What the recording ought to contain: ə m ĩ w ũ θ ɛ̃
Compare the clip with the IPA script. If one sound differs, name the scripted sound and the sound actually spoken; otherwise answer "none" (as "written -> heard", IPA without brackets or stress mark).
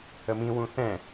none